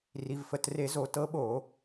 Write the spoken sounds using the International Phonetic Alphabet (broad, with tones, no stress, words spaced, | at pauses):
ri˩˧˩vfə˩˧˩tre˧˩˧zo˧˩˧ tɤ˨˦ɓo˧˩˧